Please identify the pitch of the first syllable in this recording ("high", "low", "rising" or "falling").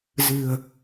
low